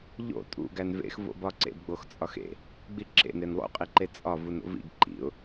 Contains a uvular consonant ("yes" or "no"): yes